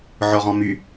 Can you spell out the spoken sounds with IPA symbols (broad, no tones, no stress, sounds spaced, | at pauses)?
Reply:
ʕ ɔ ʁ ɔ̃ m y